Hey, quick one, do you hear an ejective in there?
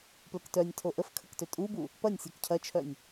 yes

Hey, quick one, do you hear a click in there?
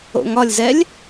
no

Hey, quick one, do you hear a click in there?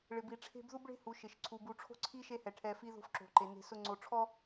yes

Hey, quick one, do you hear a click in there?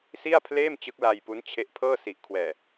no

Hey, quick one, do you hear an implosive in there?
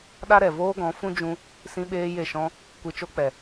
yes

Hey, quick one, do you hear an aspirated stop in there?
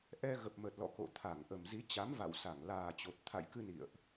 yes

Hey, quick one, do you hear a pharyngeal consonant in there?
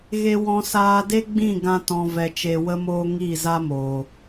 no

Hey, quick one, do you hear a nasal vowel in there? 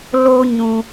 yes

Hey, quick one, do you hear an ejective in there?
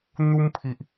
no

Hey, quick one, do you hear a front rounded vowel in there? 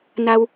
no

